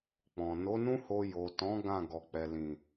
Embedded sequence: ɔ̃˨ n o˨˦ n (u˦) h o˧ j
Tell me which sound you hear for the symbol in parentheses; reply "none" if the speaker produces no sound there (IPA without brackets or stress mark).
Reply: ũ˦